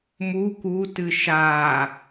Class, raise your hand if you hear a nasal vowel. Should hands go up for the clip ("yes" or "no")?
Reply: no